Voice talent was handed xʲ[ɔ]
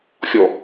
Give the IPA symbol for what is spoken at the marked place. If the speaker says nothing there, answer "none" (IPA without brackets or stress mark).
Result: ɔ